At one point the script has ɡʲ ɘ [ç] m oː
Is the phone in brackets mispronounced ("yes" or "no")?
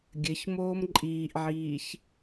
no